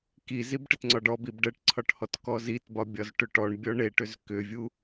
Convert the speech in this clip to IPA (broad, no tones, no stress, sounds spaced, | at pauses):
k i z i b ʈ ɘ t ŋ͡ǀ ɒ ɖ ɔ b i b ɖ ə ʈ ǀʰ ɒ ʈ h ɔ t k ɔ z i t b ɒ bʲ ɒ z ʈ ʏ ʈ ɔ ɳ bʲ ɔ ɳ e ʈ ʏ z k ʏ vʲ u